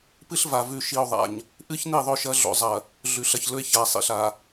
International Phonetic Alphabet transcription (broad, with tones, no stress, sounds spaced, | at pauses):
p ɨ˦ ɬ v a˨ v ʉ˨ ʃ i˨ o̯ ðˤ a̰˨ ɲ | ʔ ɨ˦ ç n i˦˨ ðˤ ɵ˦˨ ʃ ɐ˦ ɮ o̰˨ zˤ ɐ˨ | ɮ ʉ˨ ɬ ɐ˨ ç l ɵ˦ e̯ ç a˨ sˤ ḭ˨ ɬ a˨